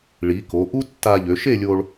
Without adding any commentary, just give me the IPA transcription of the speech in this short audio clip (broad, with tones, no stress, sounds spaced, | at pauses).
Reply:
ɭ i˩˧ k o˩˧ ʔ u˥ tː a˧ ʎ ø˩˧ ʃ e˥˧ lʲ o˧ ɭ